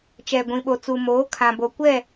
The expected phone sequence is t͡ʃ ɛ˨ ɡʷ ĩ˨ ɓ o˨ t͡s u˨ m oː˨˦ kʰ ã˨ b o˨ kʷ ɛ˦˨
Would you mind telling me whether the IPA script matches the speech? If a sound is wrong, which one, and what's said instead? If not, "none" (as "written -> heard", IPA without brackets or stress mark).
none